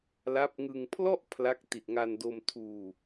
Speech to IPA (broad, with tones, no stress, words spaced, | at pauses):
la˦˥p̚ŋɯ˧ŋ pʰlɔ˥˩ʔ pʰla˦˥k̚ ti˨˩t̚ŋa˧ndo˧m tʰuː˧